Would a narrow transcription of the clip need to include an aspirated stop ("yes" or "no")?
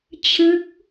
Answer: yes